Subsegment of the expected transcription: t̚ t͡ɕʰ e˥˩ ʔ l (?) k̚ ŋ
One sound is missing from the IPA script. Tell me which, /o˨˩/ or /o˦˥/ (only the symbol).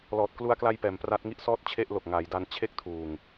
o˨˩